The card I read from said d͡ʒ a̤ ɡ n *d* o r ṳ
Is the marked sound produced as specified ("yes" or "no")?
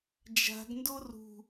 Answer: yes